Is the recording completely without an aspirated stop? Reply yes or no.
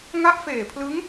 no